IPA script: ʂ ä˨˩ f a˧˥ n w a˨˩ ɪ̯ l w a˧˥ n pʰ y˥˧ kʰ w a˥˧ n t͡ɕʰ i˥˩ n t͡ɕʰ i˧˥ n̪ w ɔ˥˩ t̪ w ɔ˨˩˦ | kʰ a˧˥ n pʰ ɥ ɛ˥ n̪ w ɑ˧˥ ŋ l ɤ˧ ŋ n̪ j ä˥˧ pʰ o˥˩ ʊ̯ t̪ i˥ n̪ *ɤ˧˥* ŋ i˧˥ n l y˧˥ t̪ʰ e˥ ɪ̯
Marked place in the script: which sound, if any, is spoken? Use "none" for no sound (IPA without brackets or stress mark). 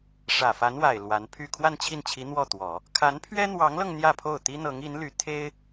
ɤ˧˥